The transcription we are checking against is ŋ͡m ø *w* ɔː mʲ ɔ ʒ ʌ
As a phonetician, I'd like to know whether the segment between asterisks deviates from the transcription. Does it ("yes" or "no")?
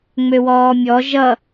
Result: no